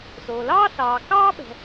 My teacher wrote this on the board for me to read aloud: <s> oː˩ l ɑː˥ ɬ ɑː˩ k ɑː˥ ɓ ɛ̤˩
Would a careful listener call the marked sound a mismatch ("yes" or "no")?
no